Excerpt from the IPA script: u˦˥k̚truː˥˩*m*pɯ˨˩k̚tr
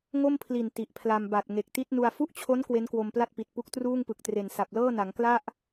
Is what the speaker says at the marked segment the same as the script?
no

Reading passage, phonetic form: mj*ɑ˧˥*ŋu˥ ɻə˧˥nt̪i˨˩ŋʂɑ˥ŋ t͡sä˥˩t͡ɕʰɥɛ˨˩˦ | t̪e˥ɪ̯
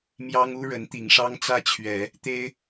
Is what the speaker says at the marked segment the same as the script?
no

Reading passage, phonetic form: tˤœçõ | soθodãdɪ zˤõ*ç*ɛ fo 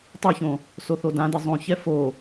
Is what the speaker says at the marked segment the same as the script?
yes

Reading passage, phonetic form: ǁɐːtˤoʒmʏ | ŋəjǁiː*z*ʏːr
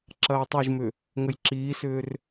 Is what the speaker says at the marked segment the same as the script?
no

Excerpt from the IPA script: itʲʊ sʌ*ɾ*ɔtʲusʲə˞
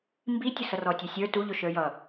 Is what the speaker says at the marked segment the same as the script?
no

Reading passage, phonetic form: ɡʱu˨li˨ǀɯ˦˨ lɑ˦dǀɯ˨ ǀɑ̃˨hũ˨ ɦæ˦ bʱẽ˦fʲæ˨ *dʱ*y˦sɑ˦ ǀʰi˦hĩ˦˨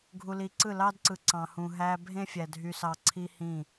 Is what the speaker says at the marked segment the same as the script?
yes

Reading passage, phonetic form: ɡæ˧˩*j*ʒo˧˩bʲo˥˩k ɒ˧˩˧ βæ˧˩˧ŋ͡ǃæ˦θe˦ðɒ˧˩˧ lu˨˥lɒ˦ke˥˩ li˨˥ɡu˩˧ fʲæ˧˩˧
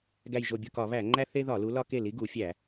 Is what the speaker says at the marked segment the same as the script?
yes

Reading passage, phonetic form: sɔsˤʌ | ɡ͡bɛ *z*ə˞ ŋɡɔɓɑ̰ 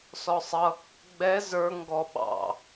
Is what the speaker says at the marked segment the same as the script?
yes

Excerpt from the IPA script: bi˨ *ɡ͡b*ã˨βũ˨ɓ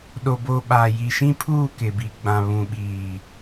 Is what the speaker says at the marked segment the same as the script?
yes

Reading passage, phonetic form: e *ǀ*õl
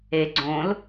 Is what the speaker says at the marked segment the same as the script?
no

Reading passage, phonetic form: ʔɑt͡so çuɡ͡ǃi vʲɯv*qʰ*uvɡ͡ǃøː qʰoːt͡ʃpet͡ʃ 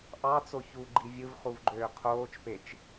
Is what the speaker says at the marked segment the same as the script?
no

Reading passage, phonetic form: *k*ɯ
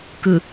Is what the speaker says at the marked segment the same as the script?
yes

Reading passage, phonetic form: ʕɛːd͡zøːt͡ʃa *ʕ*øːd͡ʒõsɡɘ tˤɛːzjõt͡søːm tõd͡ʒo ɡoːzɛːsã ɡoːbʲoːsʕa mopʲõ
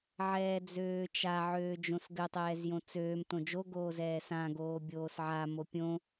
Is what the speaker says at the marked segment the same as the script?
yes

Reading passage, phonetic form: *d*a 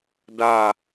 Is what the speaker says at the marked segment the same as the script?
yes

